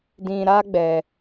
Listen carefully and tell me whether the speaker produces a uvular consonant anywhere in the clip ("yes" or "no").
no